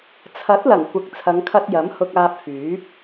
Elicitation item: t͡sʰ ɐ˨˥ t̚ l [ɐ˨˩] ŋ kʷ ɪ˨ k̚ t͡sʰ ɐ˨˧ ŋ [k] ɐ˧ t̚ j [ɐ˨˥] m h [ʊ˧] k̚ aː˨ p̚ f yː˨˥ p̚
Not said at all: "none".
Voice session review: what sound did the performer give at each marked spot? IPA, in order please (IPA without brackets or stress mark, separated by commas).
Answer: ɐ˨˩, kʰ, ɐ˨˥, ʊ˨